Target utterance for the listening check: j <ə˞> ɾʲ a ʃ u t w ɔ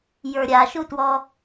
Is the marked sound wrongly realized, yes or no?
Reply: no